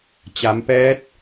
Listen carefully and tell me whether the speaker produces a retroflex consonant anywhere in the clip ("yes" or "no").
no